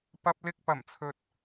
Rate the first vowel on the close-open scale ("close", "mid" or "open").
open